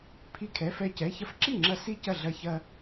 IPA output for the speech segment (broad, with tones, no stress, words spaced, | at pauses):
pʰi˧kʰɛ˩˧˩fɛ˧˩ cɛ˩˧˩çɐ˧f ǁi˥˩ŋ͡ǁɐ˧ si˥˩cɐ˥˩ ɮɐ˧çɐ˧